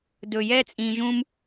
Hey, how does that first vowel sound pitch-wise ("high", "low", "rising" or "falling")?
low